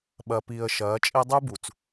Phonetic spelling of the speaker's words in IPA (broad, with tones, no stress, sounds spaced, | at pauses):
ɓ ɐ˨ p i˨ ə̯ ʃ ɐː˨˦ t͡ʃʼ e˦ dˤ u˦ b u˨ t͡s